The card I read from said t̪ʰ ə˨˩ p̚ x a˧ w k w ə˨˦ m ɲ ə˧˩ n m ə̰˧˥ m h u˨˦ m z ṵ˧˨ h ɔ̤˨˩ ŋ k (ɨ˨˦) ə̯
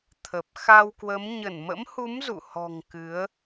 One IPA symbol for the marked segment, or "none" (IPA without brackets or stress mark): ɨ˨˦